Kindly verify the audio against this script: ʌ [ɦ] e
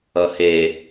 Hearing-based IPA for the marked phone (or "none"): h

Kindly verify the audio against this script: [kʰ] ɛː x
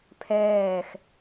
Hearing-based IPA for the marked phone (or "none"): pʰ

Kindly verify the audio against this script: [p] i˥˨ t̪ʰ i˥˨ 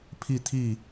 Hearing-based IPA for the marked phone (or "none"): pʰ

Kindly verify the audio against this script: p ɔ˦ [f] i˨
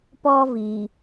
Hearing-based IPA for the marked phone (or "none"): v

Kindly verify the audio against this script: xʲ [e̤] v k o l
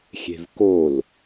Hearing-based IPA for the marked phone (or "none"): e̤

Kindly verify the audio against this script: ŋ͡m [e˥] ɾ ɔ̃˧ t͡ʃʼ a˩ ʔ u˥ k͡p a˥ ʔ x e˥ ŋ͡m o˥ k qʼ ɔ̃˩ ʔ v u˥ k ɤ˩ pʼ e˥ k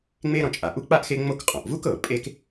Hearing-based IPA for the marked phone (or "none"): e˥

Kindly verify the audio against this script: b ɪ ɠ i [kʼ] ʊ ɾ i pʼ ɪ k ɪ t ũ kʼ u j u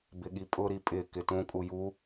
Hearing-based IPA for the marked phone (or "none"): pʼ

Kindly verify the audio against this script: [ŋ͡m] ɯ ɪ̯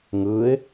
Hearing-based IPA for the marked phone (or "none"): ŋ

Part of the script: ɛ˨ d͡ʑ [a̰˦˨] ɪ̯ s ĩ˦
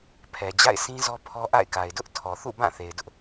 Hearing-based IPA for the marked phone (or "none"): a̰˦˨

